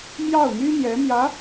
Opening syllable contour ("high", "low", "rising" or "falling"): falling